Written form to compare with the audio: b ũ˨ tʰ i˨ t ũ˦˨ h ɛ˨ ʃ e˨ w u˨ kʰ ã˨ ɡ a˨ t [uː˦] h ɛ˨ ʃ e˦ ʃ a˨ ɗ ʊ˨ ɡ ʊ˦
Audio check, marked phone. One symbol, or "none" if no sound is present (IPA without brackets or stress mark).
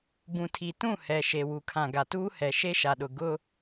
uː˦